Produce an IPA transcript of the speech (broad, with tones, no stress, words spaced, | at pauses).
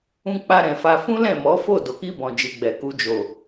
ũ˧k͡pa˧ɾɛ̃˨ fa˧ fũ˦lɛ̃˦˨mɔ˨˦fo˦˨ do˨ki˧bɔ̃˨ d͡ʒi˨ɡ͡bɛ˨ ku˧ d͡ʒo˨